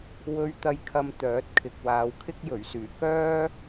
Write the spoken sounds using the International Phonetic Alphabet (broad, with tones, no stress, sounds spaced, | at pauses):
w ɵ˧ ɥ t̪ ɐ˧ j kʰ ɐ˧ m t̪ œː˨˥ t̚ kʰ ɪ˨ k̚ w aː˨ w kʰ ɪ˥ k̚ j ɵ˨˩ ɥ s yː˨˩ k œː˥